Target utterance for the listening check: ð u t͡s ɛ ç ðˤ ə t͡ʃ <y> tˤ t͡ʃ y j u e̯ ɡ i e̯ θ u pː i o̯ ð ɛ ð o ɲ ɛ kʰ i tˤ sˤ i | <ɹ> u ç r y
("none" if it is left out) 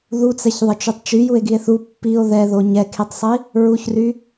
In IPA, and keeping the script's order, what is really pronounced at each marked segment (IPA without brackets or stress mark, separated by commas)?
y, ɹ